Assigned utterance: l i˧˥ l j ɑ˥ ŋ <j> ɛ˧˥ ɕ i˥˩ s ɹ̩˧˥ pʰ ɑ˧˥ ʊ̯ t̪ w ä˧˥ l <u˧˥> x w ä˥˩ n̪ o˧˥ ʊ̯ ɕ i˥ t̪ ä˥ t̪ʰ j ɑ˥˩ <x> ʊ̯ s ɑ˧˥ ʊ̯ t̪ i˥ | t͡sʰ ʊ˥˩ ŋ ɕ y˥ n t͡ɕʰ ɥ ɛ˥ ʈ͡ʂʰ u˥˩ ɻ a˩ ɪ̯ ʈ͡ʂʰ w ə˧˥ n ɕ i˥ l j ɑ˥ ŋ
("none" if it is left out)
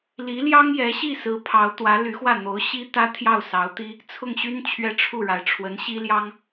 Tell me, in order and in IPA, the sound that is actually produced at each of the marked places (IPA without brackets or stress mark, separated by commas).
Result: j, y˧˥, none